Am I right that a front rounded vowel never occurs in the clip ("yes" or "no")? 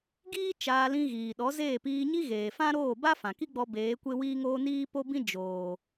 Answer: yes